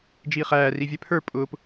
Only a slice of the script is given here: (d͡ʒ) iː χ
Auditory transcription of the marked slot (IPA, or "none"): d͡ʒ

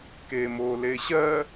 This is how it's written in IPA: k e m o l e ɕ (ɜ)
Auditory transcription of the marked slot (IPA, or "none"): ɜ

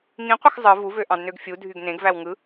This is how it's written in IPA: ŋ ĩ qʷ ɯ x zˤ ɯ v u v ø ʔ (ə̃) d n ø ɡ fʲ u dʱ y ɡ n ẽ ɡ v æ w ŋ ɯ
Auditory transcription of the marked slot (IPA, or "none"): ɑ̃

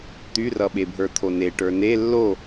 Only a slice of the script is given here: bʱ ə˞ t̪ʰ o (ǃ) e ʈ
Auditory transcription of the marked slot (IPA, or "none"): n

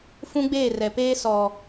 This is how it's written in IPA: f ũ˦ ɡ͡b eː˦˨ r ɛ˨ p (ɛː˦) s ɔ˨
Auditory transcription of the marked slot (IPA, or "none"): eː˦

